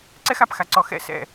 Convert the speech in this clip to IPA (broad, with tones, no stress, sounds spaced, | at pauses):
ǀ ɛ˦ x a˨ p x a˨ ǀ ɔ˨ x ɛ̰˦ s ɛ̰˦˨